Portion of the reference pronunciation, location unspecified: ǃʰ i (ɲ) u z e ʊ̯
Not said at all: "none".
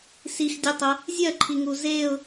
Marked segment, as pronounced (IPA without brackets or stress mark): ŋ